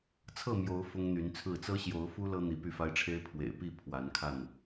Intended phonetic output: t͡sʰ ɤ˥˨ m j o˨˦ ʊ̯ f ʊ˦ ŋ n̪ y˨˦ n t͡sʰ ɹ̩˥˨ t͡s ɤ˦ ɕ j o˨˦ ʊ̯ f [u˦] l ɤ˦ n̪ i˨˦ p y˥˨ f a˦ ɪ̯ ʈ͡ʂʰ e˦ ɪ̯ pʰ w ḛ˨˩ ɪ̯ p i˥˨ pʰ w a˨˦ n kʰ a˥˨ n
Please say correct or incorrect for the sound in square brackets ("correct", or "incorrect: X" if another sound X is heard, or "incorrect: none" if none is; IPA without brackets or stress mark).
correct